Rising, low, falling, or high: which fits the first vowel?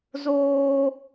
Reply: high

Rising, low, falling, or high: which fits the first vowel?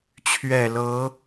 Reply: low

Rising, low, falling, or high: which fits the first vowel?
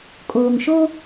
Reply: low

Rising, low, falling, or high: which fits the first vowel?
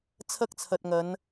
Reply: high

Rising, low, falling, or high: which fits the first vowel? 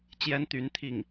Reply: high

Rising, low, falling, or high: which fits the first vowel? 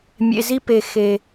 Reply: low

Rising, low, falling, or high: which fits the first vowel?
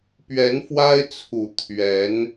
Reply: rising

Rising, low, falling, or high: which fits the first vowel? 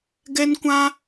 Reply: high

